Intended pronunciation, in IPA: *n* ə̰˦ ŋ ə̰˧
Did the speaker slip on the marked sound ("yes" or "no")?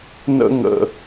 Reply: no